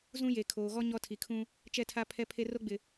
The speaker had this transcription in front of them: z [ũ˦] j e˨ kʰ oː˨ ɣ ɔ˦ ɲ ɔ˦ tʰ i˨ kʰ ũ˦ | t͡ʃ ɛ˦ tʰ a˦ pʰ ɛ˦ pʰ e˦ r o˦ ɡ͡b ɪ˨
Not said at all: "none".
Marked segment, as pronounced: ũ˦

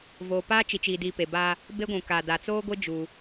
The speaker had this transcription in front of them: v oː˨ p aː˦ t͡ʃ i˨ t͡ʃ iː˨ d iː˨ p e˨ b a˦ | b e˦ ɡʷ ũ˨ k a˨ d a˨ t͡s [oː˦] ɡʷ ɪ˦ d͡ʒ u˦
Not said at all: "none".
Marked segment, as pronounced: oː˦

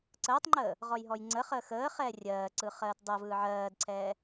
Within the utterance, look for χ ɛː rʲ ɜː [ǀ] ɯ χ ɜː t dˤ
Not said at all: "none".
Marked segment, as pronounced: ǀ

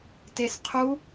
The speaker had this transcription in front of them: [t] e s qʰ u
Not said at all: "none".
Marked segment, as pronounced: t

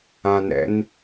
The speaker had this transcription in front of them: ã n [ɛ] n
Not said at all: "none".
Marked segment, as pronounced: ɛ̰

